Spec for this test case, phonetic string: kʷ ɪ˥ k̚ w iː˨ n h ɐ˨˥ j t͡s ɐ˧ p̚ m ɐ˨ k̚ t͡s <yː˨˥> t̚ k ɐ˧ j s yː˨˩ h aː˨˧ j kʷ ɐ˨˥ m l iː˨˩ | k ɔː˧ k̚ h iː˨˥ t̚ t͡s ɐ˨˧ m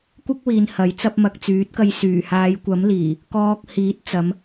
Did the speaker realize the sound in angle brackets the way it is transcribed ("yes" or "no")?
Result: yes